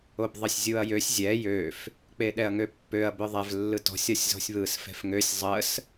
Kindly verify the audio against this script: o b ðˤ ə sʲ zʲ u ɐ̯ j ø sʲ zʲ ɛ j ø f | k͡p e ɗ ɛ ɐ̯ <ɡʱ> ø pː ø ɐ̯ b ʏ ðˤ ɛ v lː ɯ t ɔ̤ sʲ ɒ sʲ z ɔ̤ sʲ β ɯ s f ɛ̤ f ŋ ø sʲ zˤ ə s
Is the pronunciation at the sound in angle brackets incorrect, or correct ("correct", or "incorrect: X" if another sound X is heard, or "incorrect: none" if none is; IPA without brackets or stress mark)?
incorrect: ŋ